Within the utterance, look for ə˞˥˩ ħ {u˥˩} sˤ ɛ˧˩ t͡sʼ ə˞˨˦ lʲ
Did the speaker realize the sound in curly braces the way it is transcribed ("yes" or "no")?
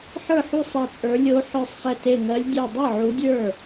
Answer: yes